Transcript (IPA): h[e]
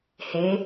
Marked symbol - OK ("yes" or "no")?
yes